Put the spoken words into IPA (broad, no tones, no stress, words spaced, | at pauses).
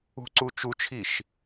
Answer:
ṳǀu t͡ʃut͡ʃʰiʃ